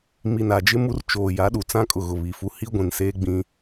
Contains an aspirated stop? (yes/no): no